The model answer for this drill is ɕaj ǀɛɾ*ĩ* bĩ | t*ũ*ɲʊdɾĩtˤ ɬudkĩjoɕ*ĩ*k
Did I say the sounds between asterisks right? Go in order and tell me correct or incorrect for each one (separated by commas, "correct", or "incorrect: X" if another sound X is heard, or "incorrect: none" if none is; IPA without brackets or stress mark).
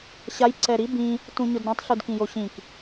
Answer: incorrect: i, correct, correct